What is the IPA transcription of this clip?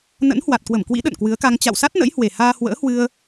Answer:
n ə̰˧˥ n h w a˨˩ t̚ k w ə˧˩ m k w ḭ˧˥ ɗ ə̰˧˨ n k w ɨ˨˦ ə̯ k a˧ ŋ t͡ɕ a̰˧˨ w s a˦˥ t̚ n ə̰˧˥ j h w e˨˩ h aː˧ h w ə̰ː˧˥ h w ɨ˧ ə̯

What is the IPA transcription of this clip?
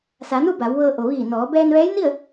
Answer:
s a˩˧ n u˥˨ b a˩˧ w ʋ ɤː˧ ʔ o˩ ʋ iː˧˩ n ɔː˩˧ b ɛː˧ n ʋ ɛː˧˥ j n i˥˨ ə̯

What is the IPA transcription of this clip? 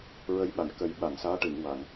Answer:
ɹ ə˧˥ j ɓ a˨˩˨ n k ə˨˩˦ j ɓ a˨˩˨ ŋ s aː˧˥ ʈ ɨ˨˩˨ ŋ w a˨˩˨ ŋ

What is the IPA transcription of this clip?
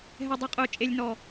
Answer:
ɦ ɛ˨ dˤ o˨ qʼ ʊː˨ t͡ʃʼ e˨ lʲ n ɔ˨

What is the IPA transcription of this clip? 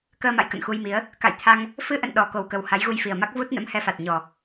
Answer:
k əː˧ m a̰˧˨ j k ə̰˧˨ n x u˧ j m i˨˦ ə̯ | k a̰˧˨ j t̪ʰ a˧ ŋ | f ɨ˧ ʔ ə̰˧˨ n ɗ ɔ˨˩ k o˨˩ w k ə˨˩ w h a˨˦ j ɣ u˧ j f i˨˩ ə̯ m a˦˥ k̚ v u˦˥ t̚ n ə̰˧˥ m h ɛ˧ f a˨˩ t̚ ɲ ɔ˨˩

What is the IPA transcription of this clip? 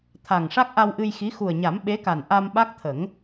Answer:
t̪ʰ a˨˩ ŋ ʂ a˦˥ k̚ ʔ a˧ w ʔ ɨ˧ j x i˧˥ x u˨˩ ə̯ ɲ a˨˩˦ m ɓ e˧˥ k a˨˩ n ʔ a˧ m ɓ a˦˥ k̚ t̪ʰ ə˨˩˦ ŋ

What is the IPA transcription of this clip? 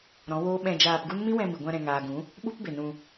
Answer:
ɾ ɔ̃˨˦ w oː˦ ɓ ɛ̃˧ d͡ʒ aː˧ p ɡ u˦ n m ĩ˦ w ɛ̃˧ m i˨ ɡʷ ã˧ ɾ ɛ̃˨ ŋ aː˨ ɡ ũ˨˦ | ɓ u˦ p b e˨ n ũ˧

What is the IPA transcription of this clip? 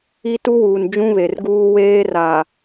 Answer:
i˦ t u˦ w uː˨ n d͡ʒ ũ˦ β e˨ r ɡ uː˦ w eː˦ r a˨

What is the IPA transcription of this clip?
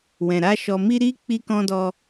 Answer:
w ɛ̃˨ ɾ a˧ ʃ ɔ˨ m i˧ ɾ i˧ k͡p i˧ k ɔ̃˧ d ɔ˧

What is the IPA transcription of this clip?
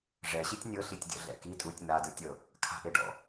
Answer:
ʐ ɛ ɕ i tʲ nʲ ɤ ɬ i tʲ dʲ ɔ̰ ɮ ɛ̰ k i tʼ u tʲ n̪ a d ɯ tʲ ɤ | kʰ a̤ ʔ e ɖ ɔ̰

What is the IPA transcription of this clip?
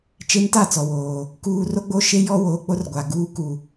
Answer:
t͡ʃ e˦ n t a˦˨ t͡s ɔ˨ w oː˨ | k uː˦ r o˦ ɡ͡b o˦ ʃ e˦ j ɔ˦ w oː˨˦ k͡p o˦ r ɡʷ a˨ ɡ uː˦ k u˨

